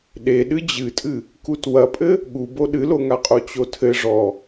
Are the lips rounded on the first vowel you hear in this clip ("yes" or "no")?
no